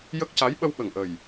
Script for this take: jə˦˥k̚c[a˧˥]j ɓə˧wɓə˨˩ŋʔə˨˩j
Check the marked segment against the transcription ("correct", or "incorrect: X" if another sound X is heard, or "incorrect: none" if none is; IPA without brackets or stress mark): correct